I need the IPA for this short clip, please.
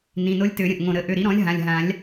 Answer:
nĩ˩˧˩no˧˥lʲtø˨˩˦ ɾʲə̃˩˧˩ʔŋõ˧˩ ɾə˩˥ ʔø˩˧˩ɾi˩˥ɾɔ̃˩˥lʲ ɦã˩˧˩lʲ ɦã˨˩˦lʲ

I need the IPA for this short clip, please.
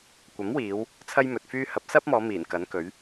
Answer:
kʷɐ˨˥mwiː˨˧w | t͡sʰɐ˥jmɵ˨t̚fyː˥ hɐ˨˥p̚sɐ˥p̚mɔː˨˧ miː˨˩nkɐ˨˥nkɵ˨˥ɥ

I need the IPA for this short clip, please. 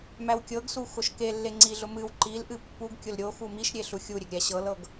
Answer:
mæwkʲɤɡsu xʊʃkelːe ŋ͡ǀiɮʊ mɨw ǃilʔɨ pːuɡkʲʊl ɾʲo xumiʃɾʲe ɬuxʲuɾʲeɡ ɾʲæɕɤlɤɡ

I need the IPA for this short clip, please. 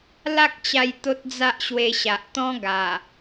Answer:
la˦k̚t͡ɕa˧j t̪o˦t̚d͡za˦ʔɕwe˧ɕa˨ʔ t̪ɔ̃˦ ɡa˨˩

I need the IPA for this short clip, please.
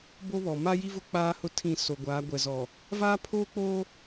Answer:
bo˦βɔ˨ ma˦ji˦vʊ˦ k͡paː˦hʊ˦tʰĩ˦˨ so˨ɡʷaː˨˦ɡʷɛ˨zɔ˨ | vaː˦pʰoː˦k͡poː˦

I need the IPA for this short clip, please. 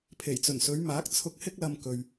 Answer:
pʰe˨˩jt͡sɵ˨˩nsɵ˨˧ɥmaː˨˥k̚ t͡sʰʊ˧k̚hɪ˥k̚lɐ˧mkɵ˨ɥ

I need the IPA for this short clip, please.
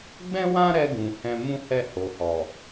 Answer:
ɡ͡bɛ̃˦wã˦ɾɛ˧ ɡũ˨hɛ̃˧ mũ˦hɛ˦˨ho˨hɔ˨

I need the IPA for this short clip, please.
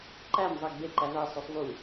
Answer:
ǃæm zˤæɡbe ǃævæ sˤosˤvu

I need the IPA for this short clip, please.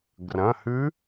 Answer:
ɡrɐ̃˩˧˩hʉ˧˥

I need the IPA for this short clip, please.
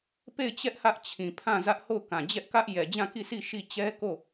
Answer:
pe˦˨ɪ̯t͡ɕɛ˦ʔ hä˦ʔt͡ɕʰĩ˨pʰã˦˨zä˦ʔ ho˦˨ʊ̯kã˨d͡ʑɛ˦ʔkä˦ʔ jɛ˨d͡ʑã˦˨ki˦˨si˦˨ ʃi˦˨ t͡ɕɛ˦ko˦˨

